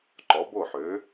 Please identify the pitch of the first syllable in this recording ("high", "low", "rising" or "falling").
rising